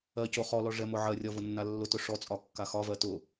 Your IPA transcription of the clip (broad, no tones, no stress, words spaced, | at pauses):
ɜco χɔlɔ ʐɛmʊʕɜrʲɒ vʊnːalːʊtʊ ʂɔt͡sʼɒ kːaxɒvɜ tʊ